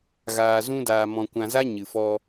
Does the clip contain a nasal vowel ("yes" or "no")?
yes